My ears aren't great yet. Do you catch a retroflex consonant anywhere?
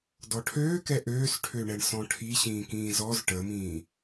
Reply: yes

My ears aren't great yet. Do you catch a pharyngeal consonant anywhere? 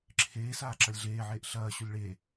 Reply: yes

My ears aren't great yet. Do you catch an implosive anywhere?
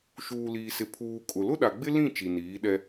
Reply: yes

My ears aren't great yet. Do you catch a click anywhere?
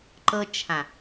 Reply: yes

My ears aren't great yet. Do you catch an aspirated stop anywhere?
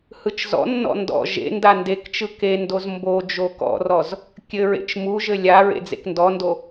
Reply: no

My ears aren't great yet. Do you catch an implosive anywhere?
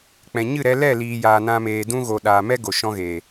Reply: yes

